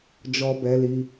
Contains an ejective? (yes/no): no